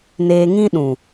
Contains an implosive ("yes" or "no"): yes